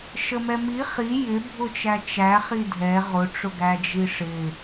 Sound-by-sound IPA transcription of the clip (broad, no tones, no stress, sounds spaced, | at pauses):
ʃ ə m ɛ m i χ i j ɪ bʱ ʊ t͡ʃ æ t͡ʃ æ χ i dʱ ɛ ʁ ʊ ʈ͡ʂ ʊ ɡ æ d͡ʒ i ʂ ɪ